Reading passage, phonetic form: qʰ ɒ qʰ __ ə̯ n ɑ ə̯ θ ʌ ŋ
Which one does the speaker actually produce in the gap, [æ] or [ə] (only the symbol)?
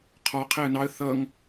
æ